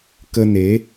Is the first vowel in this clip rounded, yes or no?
no